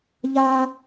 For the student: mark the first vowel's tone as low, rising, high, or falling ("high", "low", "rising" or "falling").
high